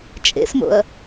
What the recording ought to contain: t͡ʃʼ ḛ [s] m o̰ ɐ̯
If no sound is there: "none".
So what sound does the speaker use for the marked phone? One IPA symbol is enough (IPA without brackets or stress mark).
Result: s